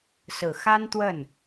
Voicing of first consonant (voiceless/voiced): voiceless